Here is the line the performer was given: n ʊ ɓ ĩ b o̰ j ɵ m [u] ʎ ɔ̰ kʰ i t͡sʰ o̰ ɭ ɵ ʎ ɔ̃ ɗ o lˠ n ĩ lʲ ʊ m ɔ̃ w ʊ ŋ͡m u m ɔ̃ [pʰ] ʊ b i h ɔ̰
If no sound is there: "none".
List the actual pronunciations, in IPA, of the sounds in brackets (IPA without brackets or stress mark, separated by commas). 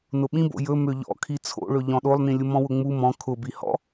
ø, kʰ